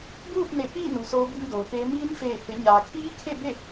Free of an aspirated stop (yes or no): no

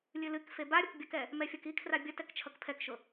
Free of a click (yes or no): yes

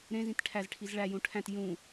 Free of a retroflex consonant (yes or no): no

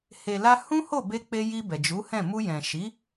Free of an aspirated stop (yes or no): yes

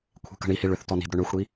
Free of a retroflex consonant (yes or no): no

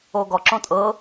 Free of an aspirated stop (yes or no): yes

